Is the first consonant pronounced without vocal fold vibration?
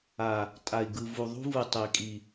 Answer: yes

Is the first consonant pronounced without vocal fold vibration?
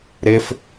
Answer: no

